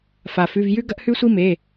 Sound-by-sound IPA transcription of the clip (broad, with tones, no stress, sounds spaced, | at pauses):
f a˩ f ʉ˩˧˩ v j ʉ˦ ɡ ɐ˦ ʔ h ʉ˦ sʷ i˦ m e˩˧˩